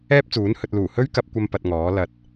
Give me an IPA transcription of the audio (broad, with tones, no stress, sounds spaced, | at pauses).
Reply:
ɛː˥ p̚ t͡s uː˨˥ n h ɵ˨ t̚ l uː˨˩ h ɵ˥ ɥ k ɐ˧ p̚ kʷ ɐ˧ m p ɐ˧ t̚ ŋ ɔː˨˥ l ɐ˨˥ t̚